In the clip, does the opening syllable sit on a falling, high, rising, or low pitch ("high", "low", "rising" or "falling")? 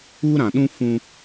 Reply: high